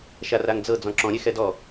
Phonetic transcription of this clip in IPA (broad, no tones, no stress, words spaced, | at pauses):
ʃaraŋd͡zɤ d͡zɔ̃ǁɔ̃ɾʲe xɛdɔ